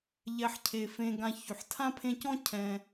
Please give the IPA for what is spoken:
ʎ ɛ˨ ħ cʰ e˩ f ẽ˨ ɡ ã˨ ç y˩ ħ tʰ ã˥ pʰ ẽ˦ c ɔ̃˥ cʰ ɛ̃˨

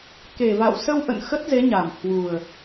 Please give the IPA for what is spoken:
k e˨˩ v a̰˧˨ w s ə˧ w ʔ ə̰˧˨ n x ə˦˥ t̚ z e˨˦ ɲ a˨˩ m h w u˨˩ ə̯

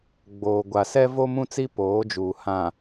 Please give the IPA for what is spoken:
ɡ͡b oː˨ ɡʷ a˨ s ɛ˦ v o˦ m ũ˦ t͡s i˦ p oː˨˦ d͡ʒ uː˨ h ã˨

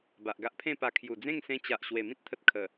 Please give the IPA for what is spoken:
b a˨ ʔ ɡ a˦ ʔ pʰ ẽ˥˧ p a˧ kʰ j u˨˩ d͡z ẽ˥˧ ŋ s ẽ˧ t͡ɕ a˨ ʔ ɕ w e˨˩ m ĩ˦ t̚ t̪ʰ ə˨ t̚ kʰ ə˨˩

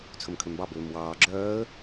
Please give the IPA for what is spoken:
t͡sʰ ɵ m kʰ ø m b ɑ b øː m w ɑː ɡ͡ǁ œː ə̯

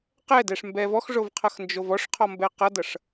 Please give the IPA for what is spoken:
q ɛ d ɛ ʂ m b ɛ v ɔ x ʐ o v qʰ ʌ x n d͡ʒ o v ɔ ʂ qʰ ɔ m b ɛ q ʌ d ʌ ʂ

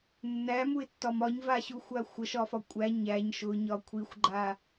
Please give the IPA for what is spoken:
nː æ m u ɪ̯ tː ɒ m ɒ ɲ v a ɕ u xʷ a xʷ ə ʃ ɒ f ɒ kʷʼ æ ɲ æ ɲ ʃ ʊ ɲ ɒ kʷʰ i xʷ ɡ͡ǃ a

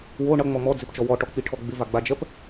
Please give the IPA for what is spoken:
w o ɳ ʌ ŋ͡m ɔ m ɔ d͡z ɪ p t͡ʃ ɔ w ɔ ʈ ɔ k͡p i ʈʰ ɔ ɡ͡b ɪ v a ɡ͡b a d͡ʒ ɜ p

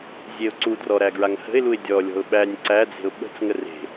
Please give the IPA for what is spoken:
zʲ e ʊ̯ ǀ u d r ɔ ɾ æ ɡ ɹ a ŋ h ə̤ ɪ̯ l u ɪ̯ dʲ ɔ lʲ ɔ̤ ʊ̯ ɓ æ nʲ ǀ æ d͡z e̤ ʊ̯ ɓ ə̤ t͡s ŋ ə r e̤

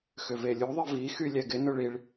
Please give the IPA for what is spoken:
x ʏ v e lʲ u ðˤ ɪ v i x y lʲ ɛ ɡ ɪ n ʊ ɭ i ɭ

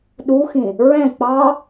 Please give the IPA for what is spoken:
ɗ u x ĩ | ɹ ɛ̃ k͡p ɑ

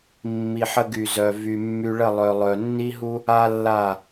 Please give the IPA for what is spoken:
mː i˨ ħ ə˧ ɡ y˨ z œ˨ v y˨ mː y˧ ɭ ə˦˨ lˠ œ˨ lˠ œ˨ nː i˦ ɦ u˦ | a˦ lː a˦˨

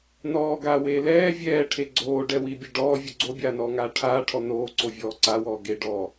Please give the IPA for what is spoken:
n ɔː ɡ aː w eː l ɛː vʲ ɛː ʈʰ e ɡ͡ǀ oː ɖ ɛ w i bʲ e ɖ ɔː vʲ u ɡ͡ǀ o bʲ aː n ɔː ŋ aː ʈʰ aː ʈʰ ɔ n oː ǀ o vʲ ɔː ǀ a w ɔː ɡ e ɖ ɔː

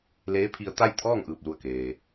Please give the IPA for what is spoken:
l eː˧˥ pʰ i˧ ə̯ t̪ a˥˨ j t̪ʰ ɔː˥˨ ŋ ʔ ɯː˧˩ p̚ l u˧˩ ə̯ k eː˩

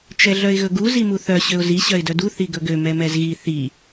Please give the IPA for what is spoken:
t͡ʃ ɛ ɮ œ ɪ̯ ɣ ɵ ɡ u z i m u θ œ ɕ ø ʊ̯ z i ɕ œ ɪ̯ d œ d u θ i ɡ ɵ ɡ ø m ɛ m ɛ z ɣ i θ i

